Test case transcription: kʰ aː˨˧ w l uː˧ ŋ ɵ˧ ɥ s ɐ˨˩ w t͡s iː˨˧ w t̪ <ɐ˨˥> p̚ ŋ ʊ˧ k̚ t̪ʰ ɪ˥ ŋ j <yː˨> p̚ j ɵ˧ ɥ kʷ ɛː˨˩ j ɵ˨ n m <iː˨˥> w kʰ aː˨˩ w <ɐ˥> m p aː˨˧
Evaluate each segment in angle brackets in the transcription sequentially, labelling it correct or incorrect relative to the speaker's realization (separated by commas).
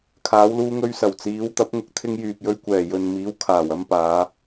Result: correct, correct, correct, correct